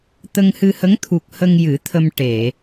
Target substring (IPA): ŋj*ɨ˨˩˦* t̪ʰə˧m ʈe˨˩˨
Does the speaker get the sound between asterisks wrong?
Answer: no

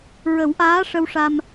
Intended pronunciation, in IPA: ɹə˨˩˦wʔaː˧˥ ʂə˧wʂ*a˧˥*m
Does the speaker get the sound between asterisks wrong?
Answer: yes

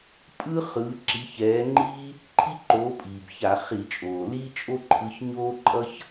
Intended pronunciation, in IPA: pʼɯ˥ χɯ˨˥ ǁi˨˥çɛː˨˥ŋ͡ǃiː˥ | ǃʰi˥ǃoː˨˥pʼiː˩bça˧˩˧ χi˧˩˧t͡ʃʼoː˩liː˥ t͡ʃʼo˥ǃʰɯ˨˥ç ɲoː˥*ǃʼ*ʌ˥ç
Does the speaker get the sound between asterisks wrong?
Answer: no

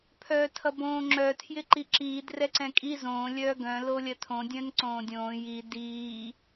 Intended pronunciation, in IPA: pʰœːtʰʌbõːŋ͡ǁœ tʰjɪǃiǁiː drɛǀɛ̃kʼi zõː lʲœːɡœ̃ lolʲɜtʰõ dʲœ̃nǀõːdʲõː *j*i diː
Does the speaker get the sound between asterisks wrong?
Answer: no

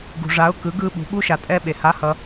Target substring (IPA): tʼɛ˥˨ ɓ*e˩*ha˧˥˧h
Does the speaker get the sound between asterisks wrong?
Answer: no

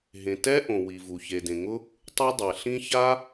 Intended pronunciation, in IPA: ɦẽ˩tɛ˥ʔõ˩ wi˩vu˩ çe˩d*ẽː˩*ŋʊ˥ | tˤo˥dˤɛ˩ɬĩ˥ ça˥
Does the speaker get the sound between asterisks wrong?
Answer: yes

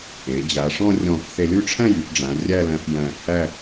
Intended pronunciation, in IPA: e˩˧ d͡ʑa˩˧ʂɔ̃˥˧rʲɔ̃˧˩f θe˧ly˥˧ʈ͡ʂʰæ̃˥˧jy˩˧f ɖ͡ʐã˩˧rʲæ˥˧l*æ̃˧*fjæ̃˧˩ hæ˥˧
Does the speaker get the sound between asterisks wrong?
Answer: no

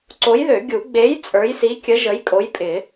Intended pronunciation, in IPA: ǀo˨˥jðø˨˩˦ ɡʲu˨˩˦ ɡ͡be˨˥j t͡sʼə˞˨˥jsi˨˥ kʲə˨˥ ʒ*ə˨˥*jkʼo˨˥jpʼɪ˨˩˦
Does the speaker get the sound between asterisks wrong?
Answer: no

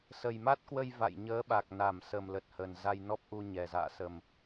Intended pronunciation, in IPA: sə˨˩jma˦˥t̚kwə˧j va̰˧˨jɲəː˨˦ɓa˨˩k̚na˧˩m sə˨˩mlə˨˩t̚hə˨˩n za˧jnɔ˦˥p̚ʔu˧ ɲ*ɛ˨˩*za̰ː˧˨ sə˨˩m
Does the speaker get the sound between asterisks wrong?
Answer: no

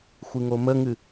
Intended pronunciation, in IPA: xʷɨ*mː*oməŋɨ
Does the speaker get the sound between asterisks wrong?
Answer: yes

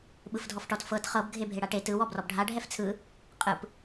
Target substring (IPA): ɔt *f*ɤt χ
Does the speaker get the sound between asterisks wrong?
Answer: no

